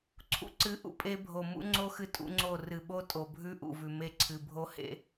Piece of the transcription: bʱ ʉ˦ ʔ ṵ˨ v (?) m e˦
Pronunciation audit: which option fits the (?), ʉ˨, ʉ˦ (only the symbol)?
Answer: ʉ˨